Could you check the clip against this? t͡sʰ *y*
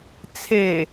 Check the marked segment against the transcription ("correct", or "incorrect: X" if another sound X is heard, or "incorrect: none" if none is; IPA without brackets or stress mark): incorrect: e